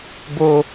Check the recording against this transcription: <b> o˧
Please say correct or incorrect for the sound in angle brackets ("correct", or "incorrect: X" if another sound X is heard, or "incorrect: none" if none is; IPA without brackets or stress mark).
correct